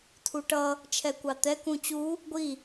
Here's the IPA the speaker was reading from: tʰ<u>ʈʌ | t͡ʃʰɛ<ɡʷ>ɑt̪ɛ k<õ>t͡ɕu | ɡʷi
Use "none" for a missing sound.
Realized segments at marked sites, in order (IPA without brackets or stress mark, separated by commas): u, kʷ, ũ